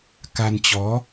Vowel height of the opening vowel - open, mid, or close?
open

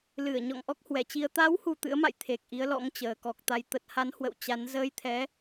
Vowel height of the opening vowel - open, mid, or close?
close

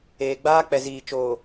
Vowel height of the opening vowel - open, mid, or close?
mid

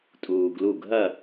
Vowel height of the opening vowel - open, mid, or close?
close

